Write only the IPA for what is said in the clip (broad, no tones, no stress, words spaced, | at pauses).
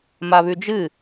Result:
maβʉd͡ʒɨ